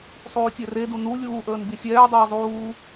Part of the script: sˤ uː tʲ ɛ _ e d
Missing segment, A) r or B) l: A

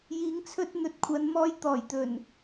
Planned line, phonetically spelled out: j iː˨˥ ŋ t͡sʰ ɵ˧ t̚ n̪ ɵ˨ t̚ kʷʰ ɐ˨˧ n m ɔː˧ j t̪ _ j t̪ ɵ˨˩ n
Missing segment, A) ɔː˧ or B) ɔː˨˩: B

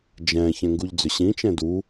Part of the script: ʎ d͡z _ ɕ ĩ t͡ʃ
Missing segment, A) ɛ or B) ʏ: B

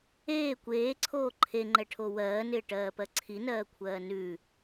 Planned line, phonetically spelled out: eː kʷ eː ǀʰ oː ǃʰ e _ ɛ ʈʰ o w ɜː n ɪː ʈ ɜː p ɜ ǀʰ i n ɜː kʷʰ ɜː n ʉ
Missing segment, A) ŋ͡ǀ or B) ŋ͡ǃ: B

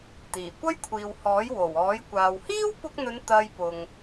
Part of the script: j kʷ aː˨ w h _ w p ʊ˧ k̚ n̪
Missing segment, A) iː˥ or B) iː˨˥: A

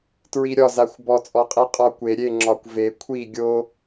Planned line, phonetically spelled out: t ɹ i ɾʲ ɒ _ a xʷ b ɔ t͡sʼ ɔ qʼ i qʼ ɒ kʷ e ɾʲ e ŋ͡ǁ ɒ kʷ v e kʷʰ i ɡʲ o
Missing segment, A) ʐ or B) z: B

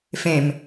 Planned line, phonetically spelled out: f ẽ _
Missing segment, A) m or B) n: A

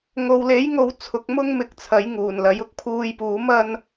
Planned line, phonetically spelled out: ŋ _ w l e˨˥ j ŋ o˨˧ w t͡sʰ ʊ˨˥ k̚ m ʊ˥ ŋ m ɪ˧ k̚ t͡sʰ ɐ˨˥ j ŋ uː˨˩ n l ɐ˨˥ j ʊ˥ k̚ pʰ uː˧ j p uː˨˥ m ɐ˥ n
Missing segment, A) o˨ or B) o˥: A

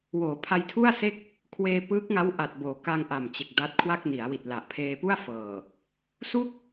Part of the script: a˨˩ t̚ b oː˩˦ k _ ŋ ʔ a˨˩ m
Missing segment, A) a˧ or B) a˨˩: A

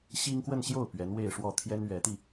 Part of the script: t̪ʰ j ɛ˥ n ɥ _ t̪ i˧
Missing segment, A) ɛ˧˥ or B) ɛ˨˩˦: A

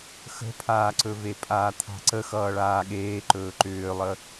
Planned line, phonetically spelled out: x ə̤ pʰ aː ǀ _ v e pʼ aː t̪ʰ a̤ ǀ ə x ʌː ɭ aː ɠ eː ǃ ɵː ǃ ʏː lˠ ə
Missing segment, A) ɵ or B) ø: A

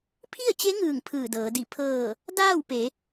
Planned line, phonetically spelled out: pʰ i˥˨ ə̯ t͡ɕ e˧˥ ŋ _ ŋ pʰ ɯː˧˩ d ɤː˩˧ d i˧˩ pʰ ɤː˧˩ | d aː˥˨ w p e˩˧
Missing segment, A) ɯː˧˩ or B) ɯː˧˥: A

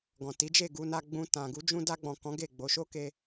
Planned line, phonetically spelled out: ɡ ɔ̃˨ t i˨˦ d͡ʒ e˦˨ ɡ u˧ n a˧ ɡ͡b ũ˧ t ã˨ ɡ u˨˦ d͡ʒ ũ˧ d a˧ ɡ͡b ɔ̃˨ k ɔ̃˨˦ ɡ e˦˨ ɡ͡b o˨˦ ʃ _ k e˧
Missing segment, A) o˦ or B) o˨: A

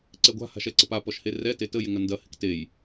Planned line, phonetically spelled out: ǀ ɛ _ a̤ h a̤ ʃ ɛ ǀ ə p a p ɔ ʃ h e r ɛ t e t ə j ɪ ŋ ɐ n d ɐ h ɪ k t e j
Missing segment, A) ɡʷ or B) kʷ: A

